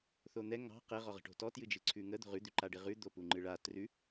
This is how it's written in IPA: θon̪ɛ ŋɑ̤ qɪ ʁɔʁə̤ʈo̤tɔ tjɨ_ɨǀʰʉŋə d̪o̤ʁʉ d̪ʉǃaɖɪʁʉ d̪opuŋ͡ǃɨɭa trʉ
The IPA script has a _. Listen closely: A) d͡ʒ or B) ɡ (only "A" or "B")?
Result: A